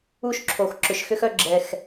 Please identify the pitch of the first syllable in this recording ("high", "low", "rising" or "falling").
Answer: high